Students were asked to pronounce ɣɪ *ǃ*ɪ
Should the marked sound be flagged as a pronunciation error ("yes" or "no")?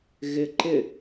no